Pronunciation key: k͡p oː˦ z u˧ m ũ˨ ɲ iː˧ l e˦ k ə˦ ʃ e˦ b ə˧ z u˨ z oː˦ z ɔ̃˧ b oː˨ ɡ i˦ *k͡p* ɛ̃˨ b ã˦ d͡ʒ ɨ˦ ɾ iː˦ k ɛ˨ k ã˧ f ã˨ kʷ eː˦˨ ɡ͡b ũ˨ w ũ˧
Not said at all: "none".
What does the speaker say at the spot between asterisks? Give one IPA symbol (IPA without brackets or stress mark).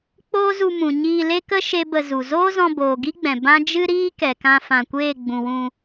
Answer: ɡ͡b